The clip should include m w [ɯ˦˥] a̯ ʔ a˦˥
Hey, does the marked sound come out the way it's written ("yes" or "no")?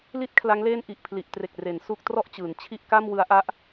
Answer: yes